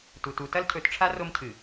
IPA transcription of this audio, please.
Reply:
t u˨ t u˨˦ t ɐ˦ l cʰ ɵ˨˦ t ʈ͡ʂʰ a˦ r o˦ m cʰ ɨ˨

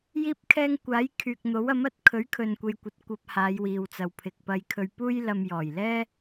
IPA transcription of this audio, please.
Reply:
j iː˥ p̚ kʰ ɛː˥ ŋ kʷ aː˨˥ j kʰ yː˨ k̚ n̪ o˨˥ w ɐ˨˥ m ɐ˨˥ t̚ kʰ ɵ˨˥ ɥ kʰ ɵ˧ n kʷ e˧ j kʷ ɐ˧ t̚ kʷ ɐ˧ p̚ h aː˨˧ j w iː˨ w t͡s ɐ˨ w pʰ ɪ˨ k̚ p ɐ˧ j kʰ ɵ˧ ɥ p uː˥ j l ɐ˧ m j ɔː˨˩ j l ɛː˥

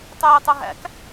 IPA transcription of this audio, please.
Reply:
tˤ yː tˤ u ɦ æ̰ k

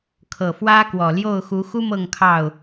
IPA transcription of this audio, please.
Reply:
kʰ ɤ˨˩ f w ä˦ k w ɔ˨˩ l j o˥˨ ʊ̯ x u˨˦ x u˦ m ɤ˥˨ ŋ kʰ ɑ˥˨ ʊ̯

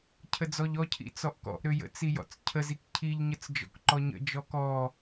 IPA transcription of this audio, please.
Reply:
cʰ ə d͡z ɔ ʎ ɔ cʰ ḭ t͡s ɔ ʔ k ɔ̰ ʔ ɾ ø j ə̰ t͡s i j ɔ̰ t͡s cʰ ə z i k cʰ i ʎ ɲ ə t͡s d͡ʒ ɔ̰ k ǃ ɔ ɲ ə̰ d͡ʒ ɔ k ɔ

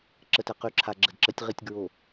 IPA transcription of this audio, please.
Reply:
ǁ ə˨ t ɛ˨ q y˨ ǁʰ a˨ ɡ͡ǁ ə˨ d ǁ ə˨˦ tʲ ʁ i˨ tʲ ɡ ɹ o˨

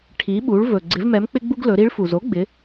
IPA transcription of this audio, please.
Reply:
ʈʰ i˩˧ ɓ u˩˧ ɭ v ɵ˩ ɡ͡ǀ ɪ˩˧ v m ɛ˩˧ m k͡p ɪ˧ ɡ͡b u˧ ɡ l ɵ˩˧ ɾ i˧˥ ɭ f u˩ z o˧˥ ɡ͡b ɪ˩˧

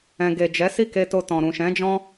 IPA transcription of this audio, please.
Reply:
ɛ̃˨ ɡ e˨ d͡ʒ ɛ˨˦ s i˦˨ k e˧ t o˧ t ɔ̃˨ ɾ ũ˨ ʃ ɛ̃˨˦ d͡ʒ ɔ̃˦

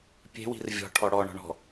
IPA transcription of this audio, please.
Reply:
pʲ e̤ w i̤ r vʲ ɔ̤ ʈʰ ɔ ɽ ɔ ɳ ɔ̤ ɳ ɔ̤

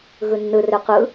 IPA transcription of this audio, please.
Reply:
ɣ ɯ nː ɯ r ø q ɯ

